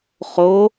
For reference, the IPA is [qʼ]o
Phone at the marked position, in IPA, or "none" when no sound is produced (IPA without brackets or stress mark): χ